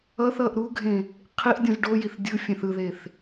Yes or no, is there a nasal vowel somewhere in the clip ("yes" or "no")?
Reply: yes